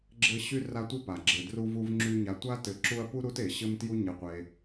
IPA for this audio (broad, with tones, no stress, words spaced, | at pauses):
ɡ͡ǁɘ˦ ɕy˥ra˦tʷɘ˥ pa˩ɡ͡ǁɘ˨dru˦vu˦v ŋ͡ǁy˦ ɲa˨ tʷa˥tɘ˨ǁu˦ɐ̯ pu˥ɾu˦te˩ ɕɘ˦mtju˦ ɲɘ˨qʷe˨